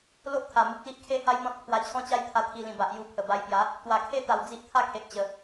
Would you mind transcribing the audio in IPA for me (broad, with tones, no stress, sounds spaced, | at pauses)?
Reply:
l o˦ ʔ t̪ʰ a˨˩ m u˨ k̚ l i˦ ʔ kʰ e˦ h a˦ j n̪ ɔ̃˦ t̚ pʰ w a˧ t͡ɕʰ ɔ̃˥˧ t͡ɕ a˦ j t̪ʰ a˧ t̪ʰ i˧ l ĩ˨˩ b a˨ ʔ j u˧ pʰ ə˨˩ b a˧ j p j a˨˦ | t̪ w a˨˩ kʰ e˦ t̪ a˨˩ w d͡z i˦ ʔ t̪ʰ a˥˧ kʰ e˨ ʔ t͡ɕ ə˨˩